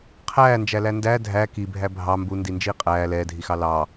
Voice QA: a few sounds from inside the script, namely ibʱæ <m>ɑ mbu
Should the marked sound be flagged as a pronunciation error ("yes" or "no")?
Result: yes